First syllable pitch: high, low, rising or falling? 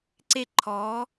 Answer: falling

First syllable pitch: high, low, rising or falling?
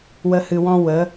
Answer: high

